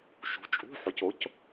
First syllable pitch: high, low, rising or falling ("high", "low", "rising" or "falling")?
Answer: rising